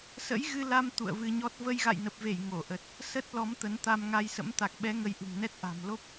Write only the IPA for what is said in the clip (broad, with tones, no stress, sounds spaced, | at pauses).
s ə̰˧˥ j ɣ ɨ˧ l a˧ m t̪ ṵ˧˨ ə̯ v ɨ˧ ɲ ɔ˦˥ t̚ v ə˧ j ɣ a̰˧˨ j n ə˨˩ p̚ v e˧˩ j ŋ o˧˩ ʔ ə˨˩ t̚ | s ə˦˥ t̚ l ɔ˨˦ m t̪ ə˨˦ n t̪ a˧ m ŋ a˧ j s ə̰˧˥ m t̪ a˨˩ k̚ ɓ ɛ˨˦ ŋ ə˧ j ʔ ɨ̤˨˩ ŋ n ɛ˦˥ t̚ ʔ a̤˨˩ m l o˦˥ p̚